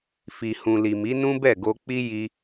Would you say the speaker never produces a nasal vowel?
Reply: no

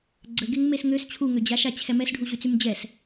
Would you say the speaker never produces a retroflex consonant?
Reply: no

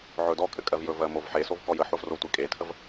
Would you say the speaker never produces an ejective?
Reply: no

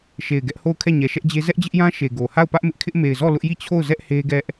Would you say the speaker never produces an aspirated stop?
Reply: no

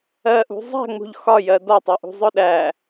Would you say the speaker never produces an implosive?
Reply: no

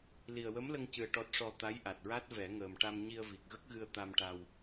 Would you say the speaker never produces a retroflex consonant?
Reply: no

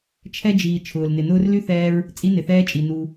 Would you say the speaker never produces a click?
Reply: yes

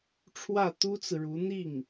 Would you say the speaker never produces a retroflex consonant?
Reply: no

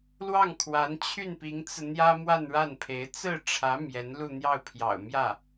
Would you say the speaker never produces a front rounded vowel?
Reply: no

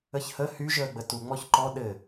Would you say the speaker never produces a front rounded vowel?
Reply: no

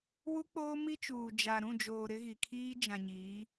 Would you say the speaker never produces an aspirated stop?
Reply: no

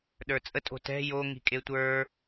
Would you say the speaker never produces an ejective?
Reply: no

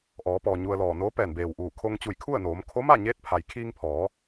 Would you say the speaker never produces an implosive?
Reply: yes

